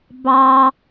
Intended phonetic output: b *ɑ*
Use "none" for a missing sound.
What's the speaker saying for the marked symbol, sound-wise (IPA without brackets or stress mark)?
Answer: ɑ